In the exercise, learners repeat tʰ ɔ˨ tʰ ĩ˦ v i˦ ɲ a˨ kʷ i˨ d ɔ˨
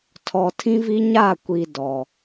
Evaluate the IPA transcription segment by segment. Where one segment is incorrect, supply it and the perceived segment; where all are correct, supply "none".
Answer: a˨ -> a˦˨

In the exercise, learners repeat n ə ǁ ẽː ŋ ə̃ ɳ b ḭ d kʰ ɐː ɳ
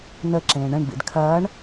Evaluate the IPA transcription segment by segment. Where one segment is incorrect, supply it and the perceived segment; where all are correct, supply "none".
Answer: ŋ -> ɳ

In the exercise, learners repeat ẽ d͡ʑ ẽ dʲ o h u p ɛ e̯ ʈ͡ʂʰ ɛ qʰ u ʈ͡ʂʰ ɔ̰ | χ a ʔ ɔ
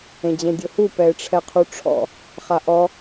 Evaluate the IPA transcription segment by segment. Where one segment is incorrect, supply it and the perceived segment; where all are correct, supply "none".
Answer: none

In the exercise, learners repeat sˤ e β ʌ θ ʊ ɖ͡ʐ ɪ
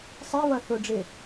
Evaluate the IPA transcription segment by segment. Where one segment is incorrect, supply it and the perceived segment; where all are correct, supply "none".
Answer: e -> i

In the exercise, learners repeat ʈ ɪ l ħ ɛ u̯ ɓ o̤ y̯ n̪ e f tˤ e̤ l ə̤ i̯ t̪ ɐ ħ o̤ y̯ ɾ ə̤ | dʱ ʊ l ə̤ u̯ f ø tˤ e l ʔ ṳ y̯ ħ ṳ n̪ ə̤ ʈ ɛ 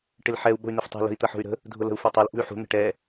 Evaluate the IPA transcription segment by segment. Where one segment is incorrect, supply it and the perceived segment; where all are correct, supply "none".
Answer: none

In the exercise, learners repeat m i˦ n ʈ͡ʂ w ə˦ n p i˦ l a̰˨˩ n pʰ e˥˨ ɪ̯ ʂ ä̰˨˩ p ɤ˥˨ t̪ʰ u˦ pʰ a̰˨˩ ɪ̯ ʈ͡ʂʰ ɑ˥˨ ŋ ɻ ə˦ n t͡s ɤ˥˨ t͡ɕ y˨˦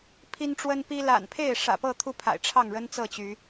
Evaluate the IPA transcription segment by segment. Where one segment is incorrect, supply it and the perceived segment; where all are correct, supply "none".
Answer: m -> pʰ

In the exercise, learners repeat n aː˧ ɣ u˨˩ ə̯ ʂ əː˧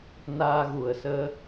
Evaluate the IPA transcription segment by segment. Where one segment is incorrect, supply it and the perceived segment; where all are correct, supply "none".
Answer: ʂ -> s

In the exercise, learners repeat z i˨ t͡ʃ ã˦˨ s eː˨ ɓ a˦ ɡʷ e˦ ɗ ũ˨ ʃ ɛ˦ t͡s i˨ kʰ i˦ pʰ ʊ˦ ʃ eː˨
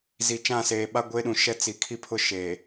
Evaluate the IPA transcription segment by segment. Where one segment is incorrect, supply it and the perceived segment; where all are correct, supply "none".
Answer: none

